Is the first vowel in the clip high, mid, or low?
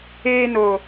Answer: mid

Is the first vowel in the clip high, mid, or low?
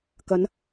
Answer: low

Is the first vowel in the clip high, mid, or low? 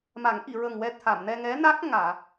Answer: low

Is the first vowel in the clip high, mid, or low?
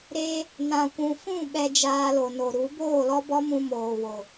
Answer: mid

